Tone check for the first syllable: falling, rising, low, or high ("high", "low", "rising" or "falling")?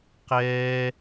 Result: high